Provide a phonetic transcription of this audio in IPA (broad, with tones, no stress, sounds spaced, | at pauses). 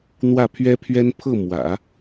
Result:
n̪ w ä˥˩ pʰ ɥ ɛ˥ pʰ ɥ ɛ˥ n pʰ ɤ˥˩ m w ä̰˨˩˦